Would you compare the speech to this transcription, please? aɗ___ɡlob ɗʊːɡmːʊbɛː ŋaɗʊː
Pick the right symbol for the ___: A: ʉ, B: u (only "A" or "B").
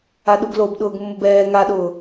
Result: B